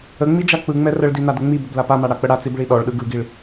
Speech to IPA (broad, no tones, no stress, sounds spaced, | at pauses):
ə ŋ͡m i d͡ʒ a k͡p ɯ ŋ͡m ɛ r ə ɭ d i n a d ə ŋ͡m i b ə b l a p a m a ɽ a k͡p ə ɽ a t͡s i b ɭ i ɗ ɔ ɭ ɗ ɯ ɡ ɯ ɡ i ɭ